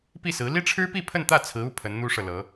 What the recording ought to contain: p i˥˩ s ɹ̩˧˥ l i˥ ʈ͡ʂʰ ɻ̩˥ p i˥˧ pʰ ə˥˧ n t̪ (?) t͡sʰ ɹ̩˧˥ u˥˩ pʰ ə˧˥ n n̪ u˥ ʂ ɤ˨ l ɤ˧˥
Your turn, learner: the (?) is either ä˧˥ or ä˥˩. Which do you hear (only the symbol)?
ä˥˩